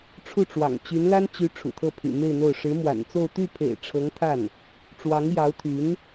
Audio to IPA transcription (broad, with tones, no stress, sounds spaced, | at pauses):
ʈ͡ʂʰ u˥˩ ʈ͡ʂ w ɑ̰˨˩ ŋ t͡ɕ y˧˥ n l a˥ n t͡ɕ y˧˥ ʈ͡ʂʰ ṵ˨˩ t̪ʰ ɤ˥˩ pʰ y̰˨˩ m e˥˧ ɪ̯ n̪ o˥˩ ʊ̯ ʂ ɻ̩˧˥ m w a̰˨˩ n t͡s o˥˧ ʊ̯ t̪ y˥˩ pʰ ḛ˨˩ ɪ̯ ʈ͡ʂʰ ɤ˧˥ ŋ t̪ʰ a˥˩ n | ʈ͡ʂ w ɑ˧˥ ŋ j ɑ˧˥ ʊ̯ t̪ʰ y˧˥ n